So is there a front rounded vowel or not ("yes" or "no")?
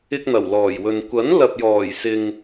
no